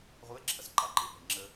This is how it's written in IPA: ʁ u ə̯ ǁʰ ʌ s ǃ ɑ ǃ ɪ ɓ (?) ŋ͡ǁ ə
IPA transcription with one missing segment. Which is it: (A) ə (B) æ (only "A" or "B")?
A